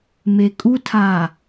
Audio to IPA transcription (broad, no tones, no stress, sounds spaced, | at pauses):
m e kʼ u tʰ aː